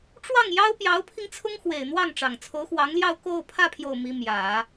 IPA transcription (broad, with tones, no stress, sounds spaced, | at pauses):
ʈ͡ʂ w ɑ˥˩ ŋ j ɑ˥ ʊ̯ p j ɑ˧˥ ʊ̯ pʰ i˧ ŋ t͡sʰ ʊ˥ ŋ x w e˨˩ ɪ̯ n̪ w ɑ˥˩ ŋ ʈ͡ʂ ɑ˨˩ ŋ t͡sʰ o˧˥ ʊ̯ x w ɑ˧˥ ŋ l j ɑ˥˧ ʊ̯ k o˥˧ ʊ̯ pʰ ä˥˧ pʰ j o˥˩ ʊ̯ m i˥ m j ä˨˩˦